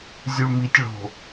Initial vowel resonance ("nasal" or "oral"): oral